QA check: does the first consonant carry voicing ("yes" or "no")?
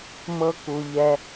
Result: yes